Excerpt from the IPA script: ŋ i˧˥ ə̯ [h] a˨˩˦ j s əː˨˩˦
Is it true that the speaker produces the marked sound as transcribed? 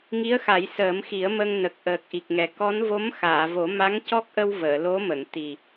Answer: no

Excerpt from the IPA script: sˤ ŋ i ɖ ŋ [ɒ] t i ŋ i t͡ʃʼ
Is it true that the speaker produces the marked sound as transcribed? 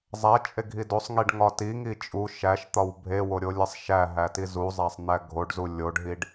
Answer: yes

